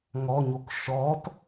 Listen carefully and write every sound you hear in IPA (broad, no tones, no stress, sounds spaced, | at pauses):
ŋ ɔ ɲ o k ʃ ɔ t